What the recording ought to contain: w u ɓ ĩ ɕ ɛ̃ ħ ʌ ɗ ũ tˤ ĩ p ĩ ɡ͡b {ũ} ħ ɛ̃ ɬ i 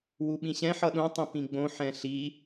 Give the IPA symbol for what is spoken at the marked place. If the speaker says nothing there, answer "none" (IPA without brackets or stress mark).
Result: õ